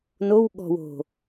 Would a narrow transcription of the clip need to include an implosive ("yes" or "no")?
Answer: yes